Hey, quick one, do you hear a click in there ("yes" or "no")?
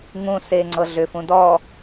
yes